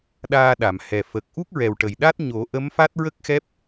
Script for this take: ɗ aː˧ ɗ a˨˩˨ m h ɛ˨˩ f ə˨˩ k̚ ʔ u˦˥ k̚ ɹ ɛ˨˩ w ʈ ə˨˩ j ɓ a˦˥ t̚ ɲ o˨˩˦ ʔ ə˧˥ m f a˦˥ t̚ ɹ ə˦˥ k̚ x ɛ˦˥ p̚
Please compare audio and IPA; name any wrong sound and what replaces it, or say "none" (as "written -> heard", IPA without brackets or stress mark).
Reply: ɓ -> ɗ